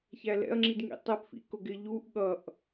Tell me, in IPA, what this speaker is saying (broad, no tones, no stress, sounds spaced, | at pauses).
ç æ l ɛ̰ ɐ̯ ŋ͡ǁ i d ŋ ḭ tˤ ɛ p f ḭ k ʊ ɡ ɪ ʎ u ʔ ɠ ʌ ʔ